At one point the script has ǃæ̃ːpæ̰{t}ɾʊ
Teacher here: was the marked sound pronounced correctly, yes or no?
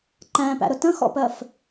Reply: no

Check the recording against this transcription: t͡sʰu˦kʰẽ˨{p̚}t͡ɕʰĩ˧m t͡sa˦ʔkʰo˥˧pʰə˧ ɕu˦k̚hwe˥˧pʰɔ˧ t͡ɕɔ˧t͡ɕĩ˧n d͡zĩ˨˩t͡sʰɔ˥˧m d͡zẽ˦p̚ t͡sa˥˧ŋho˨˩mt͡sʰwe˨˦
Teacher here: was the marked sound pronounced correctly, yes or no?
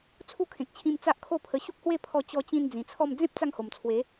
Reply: no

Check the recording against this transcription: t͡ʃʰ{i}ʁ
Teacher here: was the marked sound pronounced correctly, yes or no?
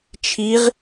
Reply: yes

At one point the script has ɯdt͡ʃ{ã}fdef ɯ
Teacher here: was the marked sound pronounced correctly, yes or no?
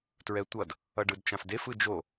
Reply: yes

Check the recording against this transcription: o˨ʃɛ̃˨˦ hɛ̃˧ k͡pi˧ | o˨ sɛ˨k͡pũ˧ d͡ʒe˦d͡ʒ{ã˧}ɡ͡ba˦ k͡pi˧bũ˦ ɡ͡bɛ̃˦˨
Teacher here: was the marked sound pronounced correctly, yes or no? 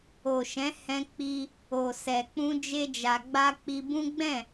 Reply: no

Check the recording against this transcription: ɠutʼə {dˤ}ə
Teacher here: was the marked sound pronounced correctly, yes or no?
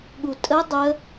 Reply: yes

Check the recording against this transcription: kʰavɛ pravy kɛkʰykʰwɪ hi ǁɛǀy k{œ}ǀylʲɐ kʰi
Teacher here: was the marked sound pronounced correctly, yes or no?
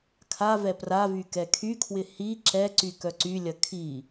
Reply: yes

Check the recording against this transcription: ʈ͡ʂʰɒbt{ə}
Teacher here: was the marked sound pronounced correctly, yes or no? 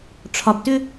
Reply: no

